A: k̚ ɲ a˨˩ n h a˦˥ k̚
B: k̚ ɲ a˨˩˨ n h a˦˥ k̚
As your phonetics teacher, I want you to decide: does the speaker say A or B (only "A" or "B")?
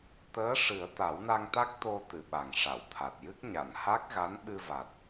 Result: B